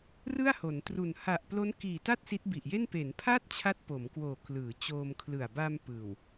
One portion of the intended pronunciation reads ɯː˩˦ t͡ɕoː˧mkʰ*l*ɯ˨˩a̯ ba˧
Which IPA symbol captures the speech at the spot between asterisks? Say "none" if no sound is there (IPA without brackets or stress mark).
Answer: l